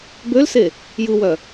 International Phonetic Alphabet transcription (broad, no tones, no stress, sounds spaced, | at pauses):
b ø l s e | j ɯ w œ